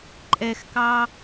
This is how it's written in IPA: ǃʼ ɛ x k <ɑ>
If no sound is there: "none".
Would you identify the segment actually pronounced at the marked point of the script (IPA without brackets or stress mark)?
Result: ɑ